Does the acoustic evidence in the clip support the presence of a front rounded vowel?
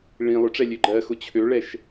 yes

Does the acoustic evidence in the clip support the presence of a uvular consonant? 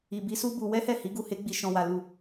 no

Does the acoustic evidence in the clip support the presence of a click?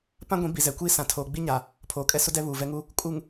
no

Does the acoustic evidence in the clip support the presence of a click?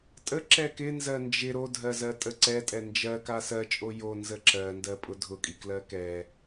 yes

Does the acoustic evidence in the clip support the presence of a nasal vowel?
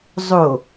no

